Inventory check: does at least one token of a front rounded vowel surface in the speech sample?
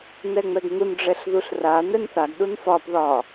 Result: no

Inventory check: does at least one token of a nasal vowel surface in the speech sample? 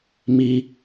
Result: no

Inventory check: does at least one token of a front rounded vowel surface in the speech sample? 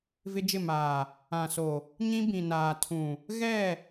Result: no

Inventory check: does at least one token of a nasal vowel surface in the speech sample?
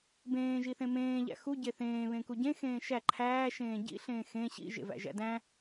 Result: yes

